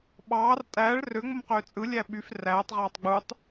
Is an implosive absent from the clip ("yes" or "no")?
no